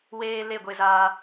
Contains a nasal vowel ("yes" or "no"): no